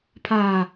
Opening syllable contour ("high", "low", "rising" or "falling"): low